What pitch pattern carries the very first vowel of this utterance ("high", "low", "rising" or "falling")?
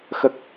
low